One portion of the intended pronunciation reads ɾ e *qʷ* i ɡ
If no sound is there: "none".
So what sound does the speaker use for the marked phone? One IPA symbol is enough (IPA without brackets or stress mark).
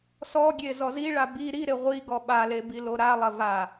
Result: ʁʷ